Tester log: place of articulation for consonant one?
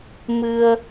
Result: labial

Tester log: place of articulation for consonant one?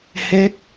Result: glottal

